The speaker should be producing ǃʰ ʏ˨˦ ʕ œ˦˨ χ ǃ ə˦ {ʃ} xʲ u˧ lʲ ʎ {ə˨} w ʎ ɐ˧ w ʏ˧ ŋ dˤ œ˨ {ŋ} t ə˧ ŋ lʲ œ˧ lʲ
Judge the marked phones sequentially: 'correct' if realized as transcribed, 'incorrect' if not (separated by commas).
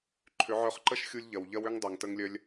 correct, incorrect, correct